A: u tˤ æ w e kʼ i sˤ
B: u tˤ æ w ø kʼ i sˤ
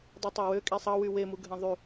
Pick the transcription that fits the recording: B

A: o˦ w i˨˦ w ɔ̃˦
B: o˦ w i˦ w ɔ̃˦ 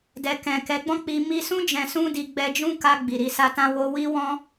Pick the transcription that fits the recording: B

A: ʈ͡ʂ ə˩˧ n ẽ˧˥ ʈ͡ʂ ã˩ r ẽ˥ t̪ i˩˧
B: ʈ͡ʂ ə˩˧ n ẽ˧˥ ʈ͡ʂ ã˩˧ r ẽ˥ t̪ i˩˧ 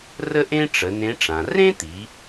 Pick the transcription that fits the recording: A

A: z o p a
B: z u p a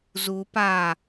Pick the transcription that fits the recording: B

